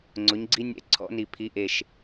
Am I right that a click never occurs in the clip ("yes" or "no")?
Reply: no